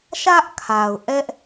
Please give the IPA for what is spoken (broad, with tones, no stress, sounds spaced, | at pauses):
ʃ ä˦ ʔ kʰ a˨ ʊ̯ ʔ ɛ˦ ʔ